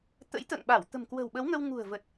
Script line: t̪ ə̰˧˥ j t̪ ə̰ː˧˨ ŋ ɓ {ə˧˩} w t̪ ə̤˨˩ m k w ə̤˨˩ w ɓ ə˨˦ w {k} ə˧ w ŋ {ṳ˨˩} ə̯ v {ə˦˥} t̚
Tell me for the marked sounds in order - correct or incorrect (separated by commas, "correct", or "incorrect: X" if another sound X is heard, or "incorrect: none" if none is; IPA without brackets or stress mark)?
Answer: incorrect: a˧˩, incorrect: ŋ, correct, incorrect: ə˨˩